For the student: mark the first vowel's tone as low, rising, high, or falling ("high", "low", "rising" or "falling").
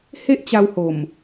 high